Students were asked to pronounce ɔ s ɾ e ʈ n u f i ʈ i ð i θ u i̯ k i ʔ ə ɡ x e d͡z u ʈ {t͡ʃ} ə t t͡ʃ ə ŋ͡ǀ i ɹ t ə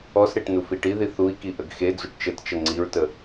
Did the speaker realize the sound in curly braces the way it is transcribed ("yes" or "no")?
yes